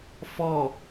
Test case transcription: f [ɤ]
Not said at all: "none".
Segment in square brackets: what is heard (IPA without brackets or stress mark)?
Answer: ɔ